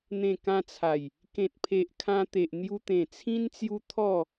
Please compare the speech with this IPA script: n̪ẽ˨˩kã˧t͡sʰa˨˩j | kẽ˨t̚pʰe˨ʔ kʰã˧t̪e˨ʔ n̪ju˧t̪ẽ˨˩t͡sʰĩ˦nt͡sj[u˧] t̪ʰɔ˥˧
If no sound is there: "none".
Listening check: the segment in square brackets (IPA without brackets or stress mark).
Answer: u˦